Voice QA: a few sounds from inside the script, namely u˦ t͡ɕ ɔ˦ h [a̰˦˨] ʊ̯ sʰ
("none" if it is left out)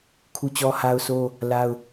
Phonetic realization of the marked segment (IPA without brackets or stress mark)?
a˦